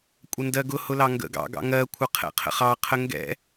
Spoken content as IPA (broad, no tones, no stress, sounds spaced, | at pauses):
kʷʼ ə n d ɜ ɡ ʊ h ʊ l ɑ ŋ ɡ ə̰ ɡ ɑ̰ ɡ ɑ̰ ŋ ɜ kʷʰ ʌ qʰ ɛ̰ qʰ ə̰ χ ɑ qʰ ə ŋ ɡ ɛ̰